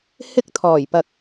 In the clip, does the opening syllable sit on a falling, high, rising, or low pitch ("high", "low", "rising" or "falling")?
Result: high